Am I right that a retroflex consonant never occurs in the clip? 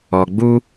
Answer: yes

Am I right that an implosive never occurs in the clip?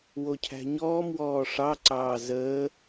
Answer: yes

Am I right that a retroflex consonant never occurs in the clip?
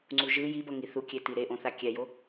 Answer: yes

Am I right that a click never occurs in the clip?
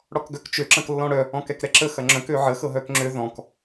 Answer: no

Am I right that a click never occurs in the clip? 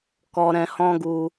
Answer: yes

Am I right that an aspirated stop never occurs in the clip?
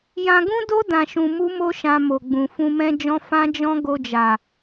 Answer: yes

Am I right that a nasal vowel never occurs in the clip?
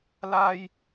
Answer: yes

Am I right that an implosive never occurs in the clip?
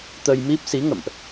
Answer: yes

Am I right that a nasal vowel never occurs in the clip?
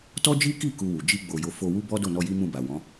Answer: no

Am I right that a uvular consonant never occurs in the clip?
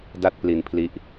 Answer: yes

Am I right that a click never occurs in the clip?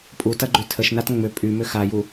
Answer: no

